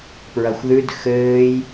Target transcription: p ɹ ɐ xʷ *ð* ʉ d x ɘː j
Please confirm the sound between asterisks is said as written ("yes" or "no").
yes